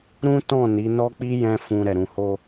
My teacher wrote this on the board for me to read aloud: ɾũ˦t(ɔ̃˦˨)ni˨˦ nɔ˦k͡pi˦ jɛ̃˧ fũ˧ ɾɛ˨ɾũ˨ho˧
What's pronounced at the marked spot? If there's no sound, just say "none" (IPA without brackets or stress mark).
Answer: ɔ̃˦˨